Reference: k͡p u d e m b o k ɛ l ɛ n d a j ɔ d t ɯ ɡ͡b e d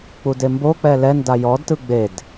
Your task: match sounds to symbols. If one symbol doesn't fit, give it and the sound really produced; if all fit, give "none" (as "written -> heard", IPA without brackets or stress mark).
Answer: k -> k͡p